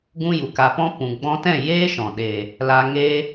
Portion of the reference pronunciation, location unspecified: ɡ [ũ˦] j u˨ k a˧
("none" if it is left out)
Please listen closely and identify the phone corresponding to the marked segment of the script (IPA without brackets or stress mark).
ũ˦